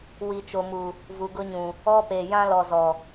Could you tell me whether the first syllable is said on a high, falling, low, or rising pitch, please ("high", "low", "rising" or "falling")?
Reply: low